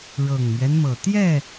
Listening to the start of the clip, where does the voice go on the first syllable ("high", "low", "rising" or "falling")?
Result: low